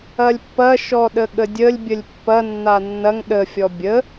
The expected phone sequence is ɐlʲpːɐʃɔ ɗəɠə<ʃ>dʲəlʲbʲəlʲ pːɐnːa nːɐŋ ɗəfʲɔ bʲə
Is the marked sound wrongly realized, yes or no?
yes